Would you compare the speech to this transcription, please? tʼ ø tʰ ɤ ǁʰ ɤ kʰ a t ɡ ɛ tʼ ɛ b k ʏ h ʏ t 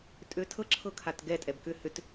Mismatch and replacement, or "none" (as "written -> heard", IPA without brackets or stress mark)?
none